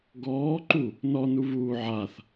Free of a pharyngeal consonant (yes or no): no